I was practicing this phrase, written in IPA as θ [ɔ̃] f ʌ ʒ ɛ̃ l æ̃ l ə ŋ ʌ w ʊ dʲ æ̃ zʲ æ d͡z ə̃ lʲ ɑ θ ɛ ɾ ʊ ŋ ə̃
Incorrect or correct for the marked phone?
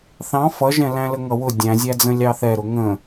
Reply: incorrect: ɑ̃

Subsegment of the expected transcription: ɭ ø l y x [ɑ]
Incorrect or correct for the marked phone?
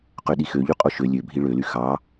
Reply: correct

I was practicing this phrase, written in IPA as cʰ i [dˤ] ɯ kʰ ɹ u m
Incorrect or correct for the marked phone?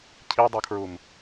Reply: correct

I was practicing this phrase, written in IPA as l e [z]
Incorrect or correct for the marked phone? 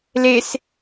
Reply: incorrect: s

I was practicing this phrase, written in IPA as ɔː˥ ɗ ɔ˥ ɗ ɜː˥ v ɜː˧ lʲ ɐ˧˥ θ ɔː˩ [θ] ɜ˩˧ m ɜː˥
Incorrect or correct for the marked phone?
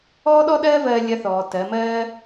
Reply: incorrect: t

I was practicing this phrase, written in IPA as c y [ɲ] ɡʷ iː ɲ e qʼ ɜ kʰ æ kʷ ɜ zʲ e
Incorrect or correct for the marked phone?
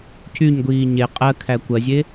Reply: correct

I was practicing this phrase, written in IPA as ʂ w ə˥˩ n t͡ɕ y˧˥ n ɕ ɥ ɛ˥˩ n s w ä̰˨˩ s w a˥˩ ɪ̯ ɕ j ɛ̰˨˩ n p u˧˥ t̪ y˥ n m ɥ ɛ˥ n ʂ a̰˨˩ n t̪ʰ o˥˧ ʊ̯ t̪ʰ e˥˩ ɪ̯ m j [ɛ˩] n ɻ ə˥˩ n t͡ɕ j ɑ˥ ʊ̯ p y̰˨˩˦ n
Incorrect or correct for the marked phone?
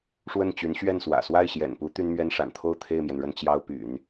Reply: correct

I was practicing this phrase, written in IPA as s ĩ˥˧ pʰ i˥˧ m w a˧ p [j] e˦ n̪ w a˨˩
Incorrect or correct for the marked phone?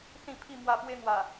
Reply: incorrect: w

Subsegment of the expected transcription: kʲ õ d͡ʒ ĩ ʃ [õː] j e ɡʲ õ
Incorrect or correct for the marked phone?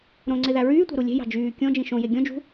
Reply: incorrect: õ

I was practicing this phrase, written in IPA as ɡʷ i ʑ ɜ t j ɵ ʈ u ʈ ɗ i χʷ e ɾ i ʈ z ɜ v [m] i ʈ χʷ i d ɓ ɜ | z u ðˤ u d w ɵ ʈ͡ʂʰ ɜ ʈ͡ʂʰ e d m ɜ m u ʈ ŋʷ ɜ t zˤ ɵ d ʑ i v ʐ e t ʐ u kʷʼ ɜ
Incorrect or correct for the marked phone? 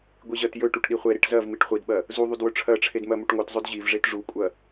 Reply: correct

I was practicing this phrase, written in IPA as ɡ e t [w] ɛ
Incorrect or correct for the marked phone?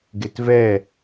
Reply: incorrect: v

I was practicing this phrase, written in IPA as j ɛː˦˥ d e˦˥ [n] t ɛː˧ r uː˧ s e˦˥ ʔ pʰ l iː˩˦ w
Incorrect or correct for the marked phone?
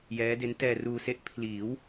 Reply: correct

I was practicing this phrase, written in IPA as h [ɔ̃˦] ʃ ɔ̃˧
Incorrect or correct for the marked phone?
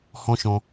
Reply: correct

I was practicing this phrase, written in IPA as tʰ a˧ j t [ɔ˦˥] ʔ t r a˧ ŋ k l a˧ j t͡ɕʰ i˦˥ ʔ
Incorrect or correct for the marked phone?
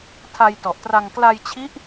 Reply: incorrect: ɔ˨˩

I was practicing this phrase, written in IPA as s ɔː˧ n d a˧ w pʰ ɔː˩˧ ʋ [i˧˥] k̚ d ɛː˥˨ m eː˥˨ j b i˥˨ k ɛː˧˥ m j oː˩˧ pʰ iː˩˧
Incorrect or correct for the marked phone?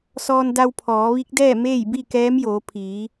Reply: correct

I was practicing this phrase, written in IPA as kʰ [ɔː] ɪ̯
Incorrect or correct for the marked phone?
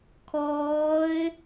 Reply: correct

